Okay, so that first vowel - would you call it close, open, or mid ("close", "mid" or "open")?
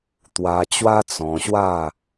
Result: open